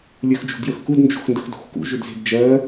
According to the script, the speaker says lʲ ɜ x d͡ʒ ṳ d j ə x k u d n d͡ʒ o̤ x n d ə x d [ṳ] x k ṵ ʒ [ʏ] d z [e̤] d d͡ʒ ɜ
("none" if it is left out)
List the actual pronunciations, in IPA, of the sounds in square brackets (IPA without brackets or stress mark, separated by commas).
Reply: o̤, ʏ, e̤